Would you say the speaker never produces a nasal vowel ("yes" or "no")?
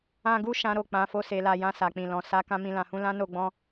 no